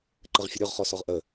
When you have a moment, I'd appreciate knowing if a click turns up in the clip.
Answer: yes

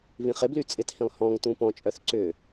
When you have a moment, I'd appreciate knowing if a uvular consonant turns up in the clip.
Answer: yes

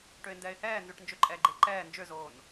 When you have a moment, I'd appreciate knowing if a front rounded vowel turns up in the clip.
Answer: yes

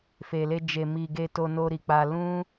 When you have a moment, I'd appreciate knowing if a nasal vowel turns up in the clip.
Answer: yes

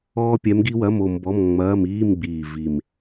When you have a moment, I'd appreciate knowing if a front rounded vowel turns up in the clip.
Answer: no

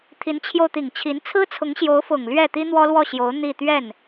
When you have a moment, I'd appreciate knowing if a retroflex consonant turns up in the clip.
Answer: no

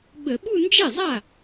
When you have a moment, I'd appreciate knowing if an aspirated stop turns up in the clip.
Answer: no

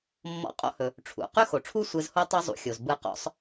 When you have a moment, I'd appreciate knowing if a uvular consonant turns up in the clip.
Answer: yes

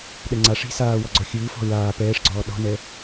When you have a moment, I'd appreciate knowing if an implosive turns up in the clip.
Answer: yes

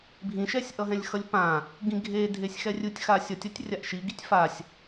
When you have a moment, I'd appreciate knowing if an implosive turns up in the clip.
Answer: no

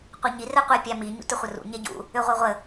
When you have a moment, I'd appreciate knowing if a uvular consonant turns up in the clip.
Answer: yes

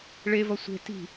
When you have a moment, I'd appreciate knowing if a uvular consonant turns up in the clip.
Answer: no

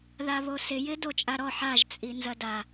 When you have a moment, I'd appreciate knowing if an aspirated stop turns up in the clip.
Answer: no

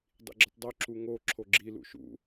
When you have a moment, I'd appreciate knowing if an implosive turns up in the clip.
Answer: no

